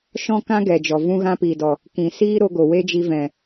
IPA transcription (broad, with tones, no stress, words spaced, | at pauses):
ʃɔ̃˦kã˦ ɡɛ˨d͡ʒɔ˨ vũ˦ɣã˦piː˨dɔ˨ | kĩ˨siː˦ɾo˧ɡo˨ we˦d͡ʒi˧vɛ̃˨